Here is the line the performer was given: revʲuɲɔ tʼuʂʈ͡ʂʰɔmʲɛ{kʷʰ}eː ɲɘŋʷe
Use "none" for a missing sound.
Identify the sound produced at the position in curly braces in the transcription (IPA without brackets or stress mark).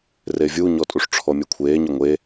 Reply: kʷʰ